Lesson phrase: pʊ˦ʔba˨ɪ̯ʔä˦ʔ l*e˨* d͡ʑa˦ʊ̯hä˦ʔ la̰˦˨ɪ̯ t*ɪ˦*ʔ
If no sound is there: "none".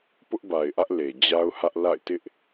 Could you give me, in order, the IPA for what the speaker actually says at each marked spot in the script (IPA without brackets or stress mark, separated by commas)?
e˨, ɪ˦